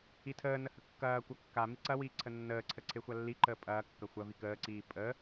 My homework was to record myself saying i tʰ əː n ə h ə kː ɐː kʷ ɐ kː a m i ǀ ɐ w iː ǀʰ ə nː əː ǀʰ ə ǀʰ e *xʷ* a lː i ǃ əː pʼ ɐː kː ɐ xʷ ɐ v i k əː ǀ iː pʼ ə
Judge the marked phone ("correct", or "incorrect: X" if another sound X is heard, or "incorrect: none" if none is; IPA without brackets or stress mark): correct